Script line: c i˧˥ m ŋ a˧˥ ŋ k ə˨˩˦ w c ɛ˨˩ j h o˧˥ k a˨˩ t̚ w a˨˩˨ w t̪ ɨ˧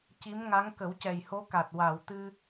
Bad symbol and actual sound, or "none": none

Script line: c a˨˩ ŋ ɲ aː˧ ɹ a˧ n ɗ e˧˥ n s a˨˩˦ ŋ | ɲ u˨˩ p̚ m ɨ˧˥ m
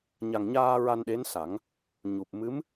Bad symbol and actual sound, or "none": c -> ɲ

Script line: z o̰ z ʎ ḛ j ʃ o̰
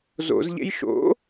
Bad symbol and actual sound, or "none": none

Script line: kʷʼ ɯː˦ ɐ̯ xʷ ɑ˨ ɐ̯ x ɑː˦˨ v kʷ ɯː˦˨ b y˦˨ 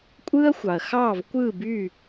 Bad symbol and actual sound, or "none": none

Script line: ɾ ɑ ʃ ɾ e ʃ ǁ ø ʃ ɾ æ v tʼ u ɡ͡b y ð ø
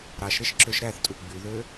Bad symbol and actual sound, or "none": v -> θ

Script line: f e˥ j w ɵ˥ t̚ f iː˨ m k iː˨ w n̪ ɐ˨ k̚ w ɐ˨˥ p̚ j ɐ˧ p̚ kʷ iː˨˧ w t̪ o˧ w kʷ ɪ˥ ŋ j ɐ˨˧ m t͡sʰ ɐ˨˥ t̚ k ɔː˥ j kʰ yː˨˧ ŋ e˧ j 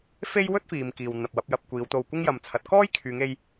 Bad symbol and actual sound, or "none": k̚ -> p̚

